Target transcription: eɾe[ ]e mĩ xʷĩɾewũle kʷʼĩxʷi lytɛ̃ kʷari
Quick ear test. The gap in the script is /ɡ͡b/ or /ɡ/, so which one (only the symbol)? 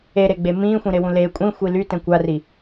ɡ͡b